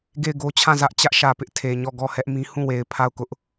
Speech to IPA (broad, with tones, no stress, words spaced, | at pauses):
ɡe˦˨ɪ̯ɡo˦t͡ɕʰã˦˨zä˦ʔ t͡ɕä˦ʔʃä˨pɪ˦ʔ tʰe˨ɲɔ˦˨ ɡɔ˦˨hɛ˦ʔmĩ˦ hũ˦˨we˨ɪ̯ pʰa˦˨ʊ̯kʊ˦ʔ